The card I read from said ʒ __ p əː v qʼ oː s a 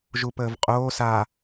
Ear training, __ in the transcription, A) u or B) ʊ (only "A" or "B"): A